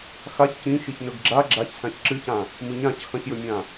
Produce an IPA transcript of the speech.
xaç cĩʃiç nɵɡɡ͡ǁa ɡ͡ǁaç sãçǁɨcã | mɨɲãc xɐ̃çjɵmʲã

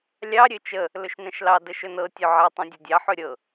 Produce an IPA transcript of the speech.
lʲɑ ɾʲøt͡ʃə | lɵʃnɛ̃ʃlɑ dəʃɵnɤ tʲɵʕɛ tˤõdʲɛdʲɑ ħɵɾʲɤ

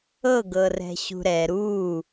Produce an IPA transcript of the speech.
ɤɡɤrɛ̤ɕṳ ɾɛ ɾu

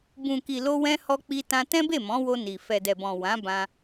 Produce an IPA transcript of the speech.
bũ˨ki˨lo˧wɛ̃˧ hɔ˧k͡pi˧tã˧ tɛ̃˦be˦˨mɔ̃˨˦wo˧ ni˨ fɛ˨dɛ˨bɔ̃˨ wã˨˦bã˧

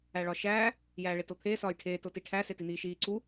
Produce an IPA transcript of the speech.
æɭɒʃæː | jæːɭetot̪ʰeː sɒːjʈʰeː totiʈʰæ setin̪iːʃiː ǀu

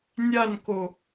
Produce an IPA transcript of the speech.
nʲanko

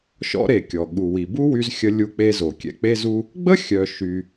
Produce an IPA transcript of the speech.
ʃɔ̰˧ɾe˩ kʲɔ˩ ɠu˩wi˩bu˥ wy˧zxʲə˧ lʲu˧k͡pe˧ zo˩kʲɛ̰˧k͡pe˥zu˥ | ɡ͡bə˥ xʲœ˧ ʃy˧

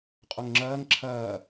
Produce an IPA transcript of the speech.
qʼoŋŋ͡ǁɐːŋ ǁʰɐː

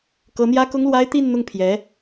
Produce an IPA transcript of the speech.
kɤ˧˥n̪jä˥kʊ˥ŋlwa˥ɪ̯ t̪i˥˧nn̪ʊ˥˩ŋpʰjɛ˧˥

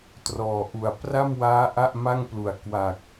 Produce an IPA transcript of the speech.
trɔː˨˩ʔu˨˩a̯ pra˥˩mwaː˦˥ ʔa˥˩ʔma˥˩ŋplu˩˦a̯ kwa˨˩k̚

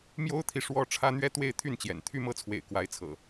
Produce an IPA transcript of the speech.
mjo˦ʊ̯t̪ʰi˨ ʂwɔ˦ʈ͡ʂʰä˦ n̪ɥɛ˦t̪we˥˨ɪ̯t̪ʰy˥˨nt͡ɕjɛ̰˨˩n t̪ʰy˥˨mɤ˥˨t͡sʰwḛ˨˩ɪ̯ kwa˨˦ɪ̯t͡sʰɤ̰˨˩

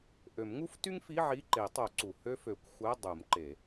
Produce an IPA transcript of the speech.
ʔø˨˩˦mŋu˥f ty˥ŋfi˧˥˧ ʕi˧˥˧ǃe˨˩˦tˤo˨˩˦ ǀu˩ hø˥fø˨˩˦kʷxʷæ˧˥˧ dˤu˨˩˦mǃe˨˩˦

